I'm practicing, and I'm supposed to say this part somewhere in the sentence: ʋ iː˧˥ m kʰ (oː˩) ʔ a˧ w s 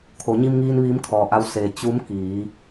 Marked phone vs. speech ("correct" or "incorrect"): incorrect